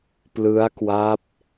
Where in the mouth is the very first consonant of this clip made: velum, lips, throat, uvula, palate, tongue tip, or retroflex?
lips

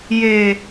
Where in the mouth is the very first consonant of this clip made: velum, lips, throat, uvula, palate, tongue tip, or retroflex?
palate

